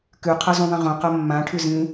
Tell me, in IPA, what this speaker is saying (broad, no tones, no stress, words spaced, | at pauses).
kʉ qʰʌzũðˤĩʁõ qʌmːã ʈʰʉzĩ